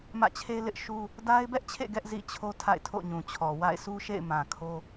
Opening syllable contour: falling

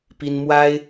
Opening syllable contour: high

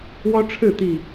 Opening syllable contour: high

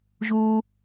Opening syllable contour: high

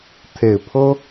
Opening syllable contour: low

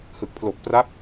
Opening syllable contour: low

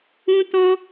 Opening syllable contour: high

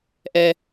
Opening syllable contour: low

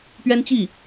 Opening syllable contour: high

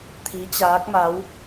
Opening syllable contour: rising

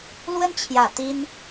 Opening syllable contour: high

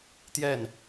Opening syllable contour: falling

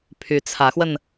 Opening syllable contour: rising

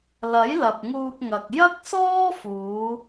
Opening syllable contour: rising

